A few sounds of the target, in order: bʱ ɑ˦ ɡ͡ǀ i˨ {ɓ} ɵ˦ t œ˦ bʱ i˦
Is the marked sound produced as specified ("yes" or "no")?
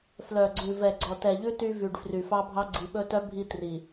yes